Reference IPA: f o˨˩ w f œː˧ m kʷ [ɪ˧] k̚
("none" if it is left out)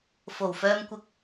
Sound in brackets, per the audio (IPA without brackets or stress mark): ɪ˧